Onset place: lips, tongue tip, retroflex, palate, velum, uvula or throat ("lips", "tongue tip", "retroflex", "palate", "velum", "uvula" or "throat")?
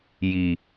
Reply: palate